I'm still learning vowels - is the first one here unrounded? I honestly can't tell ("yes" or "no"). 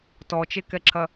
no